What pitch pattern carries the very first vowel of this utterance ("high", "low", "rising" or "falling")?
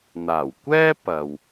low